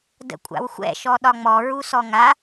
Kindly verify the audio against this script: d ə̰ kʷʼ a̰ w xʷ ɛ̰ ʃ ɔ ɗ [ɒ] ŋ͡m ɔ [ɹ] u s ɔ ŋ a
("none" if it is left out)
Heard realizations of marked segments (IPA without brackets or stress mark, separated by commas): ɒ, ɹ